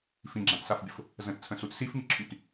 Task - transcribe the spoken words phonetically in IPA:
fĩɡ͡ǁãtsafbʲʊf | zə̃tt͡sʰə̃sut sifŋiǁʰyt

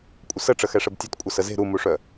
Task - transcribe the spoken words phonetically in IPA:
kʷʼəsəʈ͡ʂə xɛʂəbtʲɐtkʷʼɐ səze̤ ɾumuʂœ

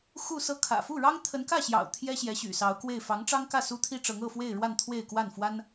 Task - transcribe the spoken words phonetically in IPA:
xu˥˧sɤ˥˩ kʰä̰˨˩fu˥˩ɻɑ˥ŋ t̪ʰə˧˥nkä˥˩ɕjɑ̰˨˩ʊ̯ t̪ʰjɛ˥ ɕjɛ˧˥ɕy̰˨˩sɑ˧˥ʊ̯kwe˥˩ɪ̯ fɑ˧˥ŋʈ͡ʂɑ˥ŋkä˥˩ su˥t̪ʰi˥ʈ͡ʂɤ˧˥ŋ ɤ˥˧fwe˥˧ɪ̯ɻwa˥˧n t̪ʰwe˥˧ɪ̯kwa˥˩nfwa˥n

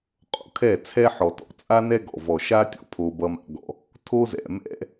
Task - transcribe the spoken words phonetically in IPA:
qʼo̰˨kʰɛ˦˨ t͡sʰɛ˦ħɔ˨tɔ̰˨ t͡sʼa˦nɛ˦ ɡɔ̰˨vɔ˨ʃa˦tʲɔ̰˨ pʰo˦bʌ˦ma̰˦ɡɔ̰˦ | tʰo˦zɛ̰˨mɛ̰˦

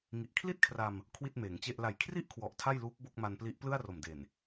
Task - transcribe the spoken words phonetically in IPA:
ŋi˨˩ʔkʰli˥˩t̚kʰra˧m | kʰwi˥˩t̚meː˩˦ŋt͡ɕe˥˩ʔ la˨˩jkʰri˥˩ʔkʰwɔ˨˩ʔ tʰa˥˩jluː˦˥k̚ bo˥˩k̚ma˧npli˦˥ʔ plɯ˥˩a̯ro˨˩mde˨˩n

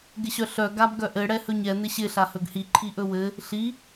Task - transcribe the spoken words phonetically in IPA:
ɡɪɕœɬœ ɡabɡœʔɘ ɽɛhɵɲɛ n̪ɪɕɪ ɬahɵɡhi ǃʰiʔɵwɘ | ɬi

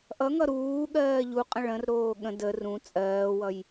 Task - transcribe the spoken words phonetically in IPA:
ʔʌŋʌ ɾuːɠɜː ʎuqʼə̃ ɭə̃rɾoː ɠə̃ də rũ t͡sʼɜːwʌj

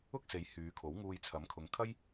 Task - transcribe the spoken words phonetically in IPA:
ʊ˥k̚se˨˥j hyː˨˧kʰo˨˥w ŋuː˧jt͡sʰɐ˨˥mkʰʊ˨˧ŋ kʰɐ˥j

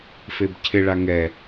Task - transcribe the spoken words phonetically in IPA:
febcʰɪɭa ŋɛ

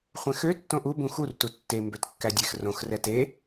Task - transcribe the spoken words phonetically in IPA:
χʷɛ̃xø tːõʔu bũxur tutːe mbøtkːædʲex rõx rɛte

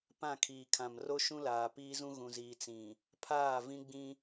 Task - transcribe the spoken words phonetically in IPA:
pã˦˨ kʰiː˨kʰã˨mro˦ ʃũ˦laː˨piː˦zũ˦ ɣũ˨ziː˨ t͡sĩ˨ | pʰaː˦˨ vĩ˦ɡ͡bĩ˦

